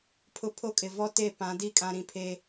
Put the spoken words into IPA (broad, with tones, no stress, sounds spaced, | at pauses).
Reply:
pʰ ʊ˨ pʰ o˦ kʼ ɪ˨ v ɔ˦ t e˦˨ p ã˨˦ d i˦ kʼ ã˨ ɾ ĩ˨ pʰ e˨